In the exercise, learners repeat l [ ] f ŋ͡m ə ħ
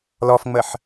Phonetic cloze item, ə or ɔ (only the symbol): ɔ